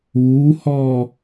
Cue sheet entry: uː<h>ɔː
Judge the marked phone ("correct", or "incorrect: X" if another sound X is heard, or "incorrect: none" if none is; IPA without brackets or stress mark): correct